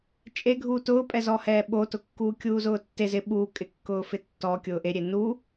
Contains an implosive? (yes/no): yes